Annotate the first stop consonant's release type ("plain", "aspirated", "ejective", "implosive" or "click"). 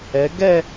plain